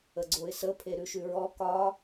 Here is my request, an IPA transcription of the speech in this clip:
ə ɡ͡ǀ o ɪ̯ s ə pʰ e ɾ ʉ ʃ ʉ ɹ ɔ k ɒ

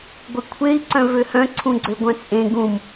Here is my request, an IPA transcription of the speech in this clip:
ɡʷ e kʷʰ e i̯ ǀ œ̃ v ø h œ̃ ǀʰ ũ ɡ͡ǀ ø ɡʷ œ̃ t͡sʼ ẽ ɡ ũ m

